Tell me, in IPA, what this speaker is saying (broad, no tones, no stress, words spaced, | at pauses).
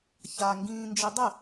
ça ŋɡĩːnd͡ʒidˤɪ